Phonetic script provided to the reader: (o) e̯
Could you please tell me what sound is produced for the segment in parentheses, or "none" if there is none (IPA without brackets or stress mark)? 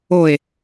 o